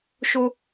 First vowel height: mid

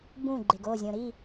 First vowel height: high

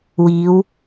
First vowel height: high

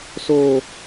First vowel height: mid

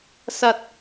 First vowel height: low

